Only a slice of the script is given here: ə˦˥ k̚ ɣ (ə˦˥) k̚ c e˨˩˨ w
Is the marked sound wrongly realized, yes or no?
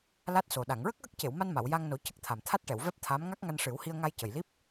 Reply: no